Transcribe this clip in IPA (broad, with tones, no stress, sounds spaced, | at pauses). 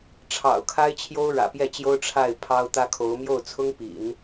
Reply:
ʈ͡ʂʰ ɑ̰˨˩ ʊ̯ kʰ a˥ ɪ̯ t͡ɕʰ j o˥ ʊ̯ ɻ ä̰˨˩ p j ɛ˥˩ t͡ɕ j o˥ ʊ̯ ʈ͡ʂʰ a˥˩ ɪ̯ pʰ ɑ˥ ʊ̯ t̪ ä˥ kʰ o˧˥ ʊ̯ m j o˥˩ ʊ̯ t͡sʰ ʊ˥ ŋ p ḭ˨˩˦ n